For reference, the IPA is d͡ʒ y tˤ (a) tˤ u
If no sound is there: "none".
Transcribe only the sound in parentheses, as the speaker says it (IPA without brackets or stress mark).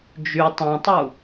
ã